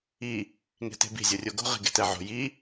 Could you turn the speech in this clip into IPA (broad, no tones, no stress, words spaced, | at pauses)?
i | ŋe̤te̤bi̤ zʲorʲoɡo̤ ʁi̤ɡe̤tɛʕo̤ ji